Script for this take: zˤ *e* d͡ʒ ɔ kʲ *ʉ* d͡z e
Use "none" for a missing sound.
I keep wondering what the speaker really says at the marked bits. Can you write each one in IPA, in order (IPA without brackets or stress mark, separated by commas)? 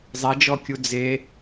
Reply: e, u